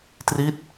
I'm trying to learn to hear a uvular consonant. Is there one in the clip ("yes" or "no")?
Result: no